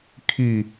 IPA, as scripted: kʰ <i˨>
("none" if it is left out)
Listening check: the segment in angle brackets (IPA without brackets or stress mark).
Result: i˨